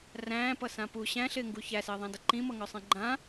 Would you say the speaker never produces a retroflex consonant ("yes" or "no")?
yes